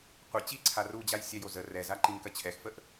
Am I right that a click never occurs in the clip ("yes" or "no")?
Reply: no